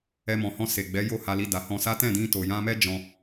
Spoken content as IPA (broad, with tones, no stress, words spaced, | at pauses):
ɛ˧mɔ̃˨hɔ̃˧ se˨ɡ͡bɛ˨˦ jo˦˨ha˧li˧ da˨hɔ̃˧sa˦ tɛ̃˦˨dĩ˧ to˨jã˧mɛ˦ d͡ʒɔ̃˧